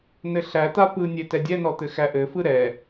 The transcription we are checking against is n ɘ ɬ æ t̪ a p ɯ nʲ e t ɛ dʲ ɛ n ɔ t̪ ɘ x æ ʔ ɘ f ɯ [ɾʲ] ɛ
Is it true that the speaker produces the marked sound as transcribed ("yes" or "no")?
no